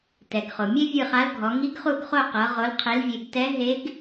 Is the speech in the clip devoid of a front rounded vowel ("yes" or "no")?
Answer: yes